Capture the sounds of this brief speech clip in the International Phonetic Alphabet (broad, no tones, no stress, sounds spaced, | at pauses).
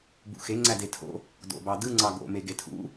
b ṵ x e ŋ͡ǀ æ d e tʰ o̰ | d o̰ b ɑ d ɯ ŋ͡ǀ ɑ ɡ o̰ m e ɡ e tʰ ṵ